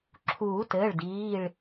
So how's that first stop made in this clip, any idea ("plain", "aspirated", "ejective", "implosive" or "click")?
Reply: click